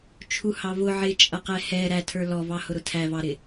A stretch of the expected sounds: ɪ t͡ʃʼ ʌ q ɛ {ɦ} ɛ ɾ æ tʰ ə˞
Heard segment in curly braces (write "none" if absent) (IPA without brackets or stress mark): h